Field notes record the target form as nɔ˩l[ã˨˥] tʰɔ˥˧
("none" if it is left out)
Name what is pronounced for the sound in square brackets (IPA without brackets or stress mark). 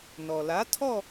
a˨˥